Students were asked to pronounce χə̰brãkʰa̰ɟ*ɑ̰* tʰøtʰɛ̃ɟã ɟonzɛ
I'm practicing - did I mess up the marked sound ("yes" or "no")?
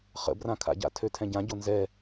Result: yes